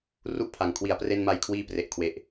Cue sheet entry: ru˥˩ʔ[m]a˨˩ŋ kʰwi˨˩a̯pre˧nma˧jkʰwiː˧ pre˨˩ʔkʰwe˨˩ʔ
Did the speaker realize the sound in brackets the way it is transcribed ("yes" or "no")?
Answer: no